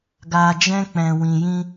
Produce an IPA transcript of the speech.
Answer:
ɡ a˧ d͡ʒ ɛ̃˦ k͡p ɛ̃˧ w ĩ˧ j ĩ˦

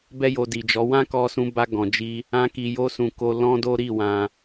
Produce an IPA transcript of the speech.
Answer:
b ɛ˦ j o˧ d i˨ d͡ʒ ɔ˨˦ w ã˦ k ɔ˧ s ũ˧ b a˧ ɡ ɔ̃˨ d͡ʒ i˧ | ã˧ k i˨ j o˧ s ũ˨ k o˧ l ɔ̃˦ d o˦ ɾ i˦˨ w ã˧

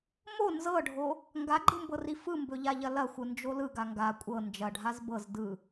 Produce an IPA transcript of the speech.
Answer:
m o n z ɤ ɖʱ o | ŋ ɡ a ɡ͡ǃ ɯ m b ɤ r i f ɯ m b ɵ ʎ a ʎ ɐ l ɐ xʷ ɯ n d͡ʒ o l ɯ ɡ a ŋ ɡ a kʷʼ ɤ n d͡ʒ ɐ ɖʱ a z b ɤ z d ɯ

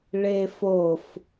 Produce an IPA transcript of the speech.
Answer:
ɭ e f o f

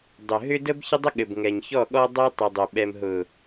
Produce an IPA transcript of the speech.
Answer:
dˤ ʏ˨ ɦ ʏ˦ d ə˦ b ç ə˦ dˤ ɘ˦ ɠ ɘ˨ b ŋ ɛ˨ ɲ ç ɔ˦˨ ɠ ɔ˦ dˤ ɛ˦ tˤ ɘ˨ dˤ ʏ˨ ɓ ɛ˨ m ɦ ʊ˨

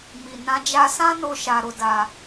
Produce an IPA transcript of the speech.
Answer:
m i˨ n ã˧ d͡ʒ a˨ s ã˧ n o˧ ʃ a˧ ɾ o˧ d a˧

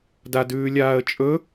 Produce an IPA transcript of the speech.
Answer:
d a d ʉː lʲ aː ə̯ t͡ʃʼ ɵ

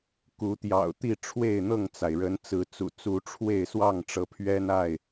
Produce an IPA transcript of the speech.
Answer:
k u˨˦ t̪ j ɑ̰˨˩ ʊ̯ t̪ i˥˨ ʈ͡ʂʰ w e˥˨ ɪ̯ n̪ ɤ˥˨ ŋ t͡s a˩ ɪ̯ ɻ ə˨˦ n t͡s ɹ̩˨˦ t͡s ṵ˨˩ t͡s u˨˦ ʈ͡ʂʰ w e˥˨ ɪ̯ s w ɑ˥˨ ŋ ʈ͡ʂ ɤ˨˦ pʰ ɥ ɛ˦ n a˥˨ ɪ̯

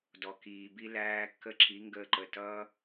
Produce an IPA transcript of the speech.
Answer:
d ɔ˨ k iː˨ b i˧ l æː˧ kː ə˦ ǁ i˨˦ ŋ ɡ əː˧ ǃ ə˨ t ʌː˦

